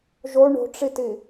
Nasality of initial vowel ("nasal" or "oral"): oral